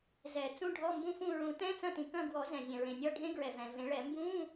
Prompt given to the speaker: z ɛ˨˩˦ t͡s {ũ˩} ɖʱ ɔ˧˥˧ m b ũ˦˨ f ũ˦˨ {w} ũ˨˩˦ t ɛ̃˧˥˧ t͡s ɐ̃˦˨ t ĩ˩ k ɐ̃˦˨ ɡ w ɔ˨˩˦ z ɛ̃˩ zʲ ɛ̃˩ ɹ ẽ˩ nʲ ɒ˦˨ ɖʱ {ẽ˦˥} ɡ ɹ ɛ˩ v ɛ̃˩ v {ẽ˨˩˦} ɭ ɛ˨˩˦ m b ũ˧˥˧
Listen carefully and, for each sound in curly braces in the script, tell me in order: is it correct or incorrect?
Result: incorrect, incorrect, correct, correct

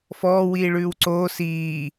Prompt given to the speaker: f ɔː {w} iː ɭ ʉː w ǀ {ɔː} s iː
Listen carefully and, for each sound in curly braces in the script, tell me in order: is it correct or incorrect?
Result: correct, incorrect

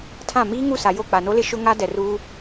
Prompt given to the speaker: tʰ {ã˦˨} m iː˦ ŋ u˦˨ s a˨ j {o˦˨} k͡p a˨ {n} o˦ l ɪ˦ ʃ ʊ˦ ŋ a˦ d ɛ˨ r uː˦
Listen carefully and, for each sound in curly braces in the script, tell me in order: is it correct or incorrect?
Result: correct, correct, correct

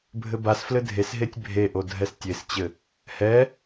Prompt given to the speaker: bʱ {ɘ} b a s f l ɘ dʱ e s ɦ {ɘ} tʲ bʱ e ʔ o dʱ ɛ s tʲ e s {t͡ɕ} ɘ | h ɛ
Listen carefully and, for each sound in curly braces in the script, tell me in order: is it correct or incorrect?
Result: correct, incorrect, correct

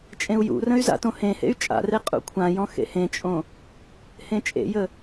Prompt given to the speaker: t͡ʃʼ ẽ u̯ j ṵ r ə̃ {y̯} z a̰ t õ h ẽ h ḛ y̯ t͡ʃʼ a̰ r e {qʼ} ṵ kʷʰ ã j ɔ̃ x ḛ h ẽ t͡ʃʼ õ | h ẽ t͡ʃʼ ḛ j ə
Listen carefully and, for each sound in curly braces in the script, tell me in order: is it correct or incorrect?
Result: correct, correct

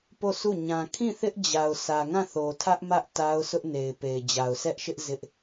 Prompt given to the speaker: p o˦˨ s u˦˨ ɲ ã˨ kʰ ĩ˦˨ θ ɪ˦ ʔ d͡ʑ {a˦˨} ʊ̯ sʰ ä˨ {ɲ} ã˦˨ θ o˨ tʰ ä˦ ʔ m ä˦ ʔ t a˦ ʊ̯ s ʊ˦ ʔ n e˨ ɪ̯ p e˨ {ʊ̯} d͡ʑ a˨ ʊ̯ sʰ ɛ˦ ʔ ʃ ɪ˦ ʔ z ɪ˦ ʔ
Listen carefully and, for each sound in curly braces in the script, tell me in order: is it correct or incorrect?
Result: incorrect, incorrect, incorrect

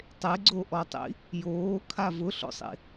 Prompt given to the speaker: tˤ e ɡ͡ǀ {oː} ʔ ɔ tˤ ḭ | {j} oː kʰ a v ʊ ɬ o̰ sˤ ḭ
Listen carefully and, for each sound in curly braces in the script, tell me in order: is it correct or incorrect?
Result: incorrect, correct

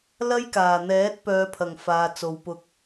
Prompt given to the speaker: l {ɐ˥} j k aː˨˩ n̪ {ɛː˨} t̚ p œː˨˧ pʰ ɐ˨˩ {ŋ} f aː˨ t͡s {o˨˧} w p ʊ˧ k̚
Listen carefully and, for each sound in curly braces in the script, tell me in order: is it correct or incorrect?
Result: correct, incorrect, correct, correct

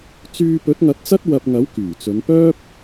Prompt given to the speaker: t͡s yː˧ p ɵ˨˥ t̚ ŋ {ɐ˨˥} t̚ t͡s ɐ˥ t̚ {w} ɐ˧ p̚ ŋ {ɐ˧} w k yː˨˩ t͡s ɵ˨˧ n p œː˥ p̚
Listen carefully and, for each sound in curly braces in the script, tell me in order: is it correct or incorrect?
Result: correct, correct, incorrect

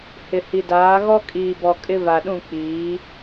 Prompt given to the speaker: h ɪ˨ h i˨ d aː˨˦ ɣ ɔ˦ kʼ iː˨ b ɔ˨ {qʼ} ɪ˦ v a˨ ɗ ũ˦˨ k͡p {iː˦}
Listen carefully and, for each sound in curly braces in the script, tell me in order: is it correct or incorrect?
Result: incorrect, incorrect

